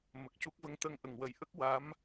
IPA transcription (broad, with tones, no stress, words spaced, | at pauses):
mə˨˩k̚cu˦˥k̚və˧ŋ t̪ə˧˥ŋʔə˨˩ŋwə˨˩jʔə˦˥k̚ wa˧˥m